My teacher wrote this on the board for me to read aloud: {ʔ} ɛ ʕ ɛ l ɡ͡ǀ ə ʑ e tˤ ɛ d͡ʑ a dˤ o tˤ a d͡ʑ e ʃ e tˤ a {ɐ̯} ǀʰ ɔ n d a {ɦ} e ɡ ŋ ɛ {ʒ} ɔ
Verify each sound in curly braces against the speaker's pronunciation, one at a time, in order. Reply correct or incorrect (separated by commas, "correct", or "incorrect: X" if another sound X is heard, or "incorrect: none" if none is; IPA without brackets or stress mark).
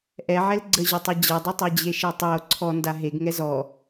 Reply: correct, incorrect: o̯, correct, incorrect: z